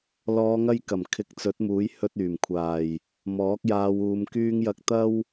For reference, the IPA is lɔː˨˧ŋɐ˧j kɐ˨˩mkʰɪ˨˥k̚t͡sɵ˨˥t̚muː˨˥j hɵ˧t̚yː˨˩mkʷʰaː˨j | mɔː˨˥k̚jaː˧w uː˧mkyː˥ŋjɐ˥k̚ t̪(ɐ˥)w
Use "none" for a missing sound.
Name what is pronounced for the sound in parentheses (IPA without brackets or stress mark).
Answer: ɐ˥